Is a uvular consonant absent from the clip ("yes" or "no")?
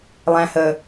yes